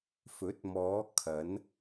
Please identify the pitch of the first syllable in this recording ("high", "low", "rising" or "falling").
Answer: rising